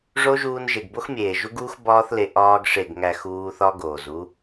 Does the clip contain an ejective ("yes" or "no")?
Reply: no